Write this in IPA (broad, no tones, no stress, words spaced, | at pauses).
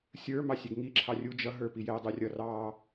sʲə˞ mɑsʲɛɡŋi ǁʰɑrʲu d͡ʒʌ ɦə˞pijɛ dˤurʲʌ rɑ